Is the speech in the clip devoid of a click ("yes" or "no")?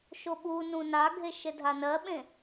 yes